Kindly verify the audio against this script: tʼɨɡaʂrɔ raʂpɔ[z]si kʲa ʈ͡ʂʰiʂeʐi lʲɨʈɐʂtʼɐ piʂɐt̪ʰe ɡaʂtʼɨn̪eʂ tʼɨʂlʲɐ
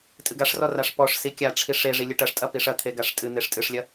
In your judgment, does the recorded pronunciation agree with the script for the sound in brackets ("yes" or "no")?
no